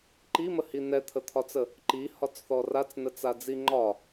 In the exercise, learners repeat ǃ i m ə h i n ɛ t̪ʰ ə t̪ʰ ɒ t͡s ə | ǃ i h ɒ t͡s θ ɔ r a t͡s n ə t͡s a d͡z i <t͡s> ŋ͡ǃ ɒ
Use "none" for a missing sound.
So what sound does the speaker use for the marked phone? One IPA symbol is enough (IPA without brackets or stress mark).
none